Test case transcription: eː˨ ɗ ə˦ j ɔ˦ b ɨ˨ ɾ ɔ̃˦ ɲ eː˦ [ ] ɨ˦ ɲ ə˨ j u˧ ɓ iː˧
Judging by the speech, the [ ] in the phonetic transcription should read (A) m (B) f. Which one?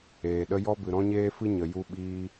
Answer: B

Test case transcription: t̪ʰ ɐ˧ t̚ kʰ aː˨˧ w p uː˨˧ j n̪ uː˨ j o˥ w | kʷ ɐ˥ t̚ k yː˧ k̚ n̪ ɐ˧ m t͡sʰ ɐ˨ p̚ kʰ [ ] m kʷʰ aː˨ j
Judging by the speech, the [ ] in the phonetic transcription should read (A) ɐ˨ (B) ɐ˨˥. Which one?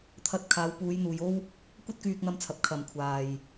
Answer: A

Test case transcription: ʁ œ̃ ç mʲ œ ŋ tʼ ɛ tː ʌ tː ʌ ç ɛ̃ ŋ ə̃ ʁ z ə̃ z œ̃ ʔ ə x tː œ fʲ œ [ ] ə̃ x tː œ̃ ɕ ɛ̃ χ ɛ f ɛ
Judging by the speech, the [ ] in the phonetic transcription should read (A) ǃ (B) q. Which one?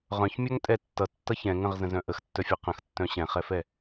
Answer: B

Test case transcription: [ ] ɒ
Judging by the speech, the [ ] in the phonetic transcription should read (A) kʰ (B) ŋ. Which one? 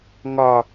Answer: B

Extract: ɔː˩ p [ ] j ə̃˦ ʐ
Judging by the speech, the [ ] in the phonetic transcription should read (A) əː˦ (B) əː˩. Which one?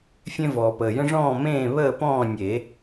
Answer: B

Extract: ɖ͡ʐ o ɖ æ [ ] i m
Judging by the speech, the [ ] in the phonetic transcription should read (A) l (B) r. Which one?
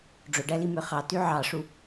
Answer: A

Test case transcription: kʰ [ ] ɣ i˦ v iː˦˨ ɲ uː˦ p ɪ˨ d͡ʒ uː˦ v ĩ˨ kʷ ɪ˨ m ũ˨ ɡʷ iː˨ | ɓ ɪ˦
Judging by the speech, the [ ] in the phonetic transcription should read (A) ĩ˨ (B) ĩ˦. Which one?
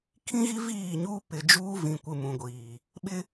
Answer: B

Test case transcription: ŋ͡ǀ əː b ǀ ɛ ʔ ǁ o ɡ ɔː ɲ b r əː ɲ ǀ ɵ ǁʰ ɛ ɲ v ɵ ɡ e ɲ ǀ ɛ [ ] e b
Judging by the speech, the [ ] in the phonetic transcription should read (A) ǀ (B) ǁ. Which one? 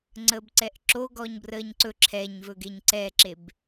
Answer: B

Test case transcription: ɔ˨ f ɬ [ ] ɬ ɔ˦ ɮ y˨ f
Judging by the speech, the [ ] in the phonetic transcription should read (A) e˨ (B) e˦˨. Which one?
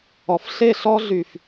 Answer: B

